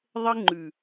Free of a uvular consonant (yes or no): yes